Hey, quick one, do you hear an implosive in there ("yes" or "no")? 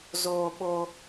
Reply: yes